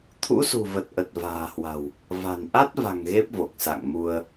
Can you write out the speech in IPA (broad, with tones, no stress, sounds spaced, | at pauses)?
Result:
t̪ʰ ṵ˧˥ s ṳ˨˩ v ə˨˩ t̚ ʔ ə˨˩ t̚ v a̤ː˨˩ h w a̤˨˩ w | v a̤˨˩ n ʔ a˦˥ t̚ v a̤˨˩ ŋ ɣ e˦˥ p̚ v o˨˩ k̚ s a̰˧˨ ŋ m u˧ ə̯